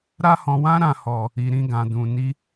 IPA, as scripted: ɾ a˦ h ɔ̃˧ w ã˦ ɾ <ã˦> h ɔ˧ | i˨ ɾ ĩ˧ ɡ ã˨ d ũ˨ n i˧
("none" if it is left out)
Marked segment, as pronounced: ã˦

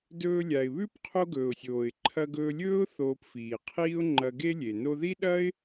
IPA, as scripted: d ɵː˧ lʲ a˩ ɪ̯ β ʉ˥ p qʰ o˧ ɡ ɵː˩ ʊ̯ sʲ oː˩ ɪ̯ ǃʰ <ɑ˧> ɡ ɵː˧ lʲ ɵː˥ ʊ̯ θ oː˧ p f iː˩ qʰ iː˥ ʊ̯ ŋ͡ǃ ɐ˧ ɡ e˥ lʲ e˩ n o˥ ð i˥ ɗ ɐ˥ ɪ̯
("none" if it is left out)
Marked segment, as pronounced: ɐ˧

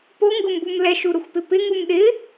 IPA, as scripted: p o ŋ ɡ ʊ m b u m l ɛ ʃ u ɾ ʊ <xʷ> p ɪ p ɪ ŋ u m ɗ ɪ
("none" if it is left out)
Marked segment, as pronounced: xʷ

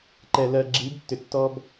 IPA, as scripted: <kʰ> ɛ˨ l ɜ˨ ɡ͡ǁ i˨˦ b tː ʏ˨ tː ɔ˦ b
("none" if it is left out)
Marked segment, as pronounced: ǃ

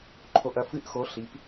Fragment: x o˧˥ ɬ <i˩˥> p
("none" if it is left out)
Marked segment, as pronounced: i˩˥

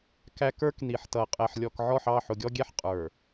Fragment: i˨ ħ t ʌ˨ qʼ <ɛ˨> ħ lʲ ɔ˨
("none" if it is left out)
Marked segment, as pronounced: ɛ˨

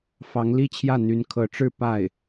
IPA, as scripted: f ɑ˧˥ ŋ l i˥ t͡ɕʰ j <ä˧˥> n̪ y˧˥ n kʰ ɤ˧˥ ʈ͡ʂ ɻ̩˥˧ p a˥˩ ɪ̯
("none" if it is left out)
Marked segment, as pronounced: ä˥˩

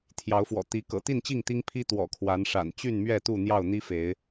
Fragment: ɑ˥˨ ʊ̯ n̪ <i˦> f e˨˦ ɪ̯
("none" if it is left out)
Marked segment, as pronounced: i˦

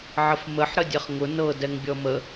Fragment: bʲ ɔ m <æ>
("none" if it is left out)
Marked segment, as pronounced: ə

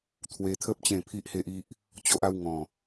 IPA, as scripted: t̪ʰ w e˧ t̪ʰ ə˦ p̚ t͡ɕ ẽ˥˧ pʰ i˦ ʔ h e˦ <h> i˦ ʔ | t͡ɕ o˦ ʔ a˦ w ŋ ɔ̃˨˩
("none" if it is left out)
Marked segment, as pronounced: ʔ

